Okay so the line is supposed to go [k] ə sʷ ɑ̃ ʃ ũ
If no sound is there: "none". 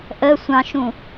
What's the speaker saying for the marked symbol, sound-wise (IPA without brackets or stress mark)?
ʔ